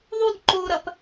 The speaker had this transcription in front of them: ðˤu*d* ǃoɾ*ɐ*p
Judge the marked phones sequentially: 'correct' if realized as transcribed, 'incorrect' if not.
correct, correct

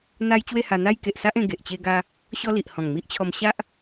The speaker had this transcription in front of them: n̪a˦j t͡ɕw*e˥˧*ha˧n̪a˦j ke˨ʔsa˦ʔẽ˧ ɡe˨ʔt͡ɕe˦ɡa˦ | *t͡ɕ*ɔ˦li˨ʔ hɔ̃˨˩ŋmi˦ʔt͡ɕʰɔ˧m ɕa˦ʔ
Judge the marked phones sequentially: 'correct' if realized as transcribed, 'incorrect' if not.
correct, incorrect

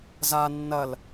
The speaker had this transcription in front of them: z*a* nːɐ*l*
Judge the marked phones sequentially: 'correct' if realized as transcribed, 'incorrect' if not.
correct, correct

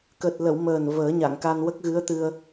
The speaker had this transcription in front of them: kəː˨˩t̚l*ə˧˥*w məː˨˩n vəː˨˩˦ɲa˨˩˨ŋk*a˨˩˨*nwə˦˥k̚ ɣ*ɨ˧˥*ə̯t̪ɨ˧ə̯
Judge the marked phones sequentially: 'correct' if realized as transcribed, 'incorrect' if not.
incorrect, incorrect, correct

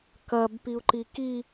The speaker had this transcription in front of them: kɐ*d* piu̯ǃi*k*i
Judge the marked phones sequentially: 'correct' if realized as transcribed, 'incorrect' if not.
incorrect, correct

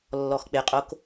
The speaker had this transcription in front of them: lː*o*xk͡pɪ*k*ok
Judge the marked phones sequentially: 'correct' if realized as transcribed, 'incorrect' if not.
incorrect, incorrect

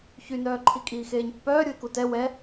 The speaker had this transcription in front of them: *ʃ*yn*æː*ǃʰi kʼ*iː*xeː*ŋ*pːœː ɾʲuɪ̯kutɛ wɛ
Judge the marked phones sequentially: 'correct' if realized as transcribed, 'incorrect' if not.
incorrect, incorrect, correct, incorrect

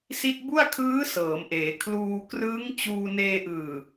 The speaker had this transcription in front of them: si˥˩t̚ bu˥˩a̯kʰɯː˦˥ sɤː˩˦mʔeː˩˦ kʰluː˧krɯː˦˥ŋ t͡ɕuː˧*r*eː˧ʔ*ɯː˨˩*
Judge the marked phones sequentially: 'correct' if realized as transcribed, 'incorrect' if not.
incorrect, correct

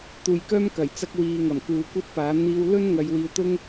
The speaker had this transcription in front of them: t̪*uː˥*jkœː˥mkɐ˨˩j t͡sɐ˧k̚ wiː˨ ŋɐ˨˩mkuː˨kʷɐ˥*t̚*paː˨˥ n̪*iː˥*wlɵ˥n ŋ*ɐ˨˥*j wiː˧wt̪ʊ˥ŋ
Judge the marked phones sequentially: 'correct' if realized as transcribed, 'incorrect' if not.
incorrect, correct, incorrect, incorrect

